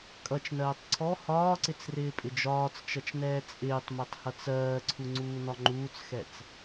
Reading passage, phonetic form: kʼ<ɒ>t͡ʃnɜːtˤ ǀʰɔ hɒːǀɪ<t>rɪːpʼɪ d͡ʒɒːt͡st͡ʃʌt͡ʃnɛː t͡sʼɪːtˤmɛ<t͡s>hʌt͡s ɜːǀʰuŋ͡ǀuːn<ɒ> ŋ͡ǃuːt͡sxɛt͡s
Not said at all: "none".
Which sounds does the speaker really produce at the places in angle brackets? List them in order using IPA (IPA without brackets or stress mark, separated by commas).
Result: ʌ, t͡s, tˤ, ɒ